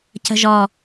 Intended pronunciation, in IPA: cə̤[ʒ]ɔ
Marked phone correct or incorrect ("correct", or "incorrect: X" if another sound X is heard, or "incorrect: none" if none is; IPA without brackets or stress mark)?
correct